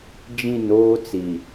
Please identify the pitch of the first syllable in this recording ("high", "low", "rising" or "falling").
falling